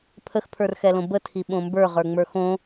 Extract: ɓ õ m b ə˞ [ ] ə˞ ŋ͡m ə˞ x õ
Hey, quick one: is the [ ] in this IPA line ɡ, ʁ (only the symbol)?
ʁ